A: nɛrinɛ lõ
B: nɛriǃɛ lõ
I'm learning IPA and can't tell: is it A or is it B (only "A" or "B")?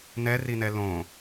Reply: A